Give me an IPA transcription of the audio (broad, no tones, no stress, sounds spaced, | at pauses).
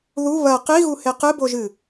ð u β ɐ q i ɣ u h e q ɨ b o ʒ ɨ